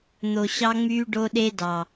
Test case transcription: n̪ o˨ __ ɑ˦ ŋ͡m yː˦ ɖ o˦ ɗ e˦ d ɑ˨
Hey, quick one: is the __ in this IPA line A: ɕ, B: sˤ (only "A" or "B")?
A